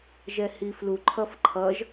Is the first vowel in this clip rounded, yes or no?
no